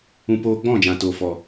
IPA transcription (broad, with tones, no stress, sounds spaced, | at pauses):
ũ˧ p oː˧ ɡ͡b ɔ̃˦˨ d͡ʒ ã˨ t oː˨ f ɔ˨